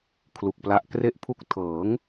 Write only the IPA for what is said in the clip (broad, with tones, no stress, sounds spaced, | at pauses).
kʰ l u˨˩ k̚ p l a˦˥ ʔ k r e˥˩ ʔ pʰ u˥˩ k̚ tʰ ɤː˩˦ ŋ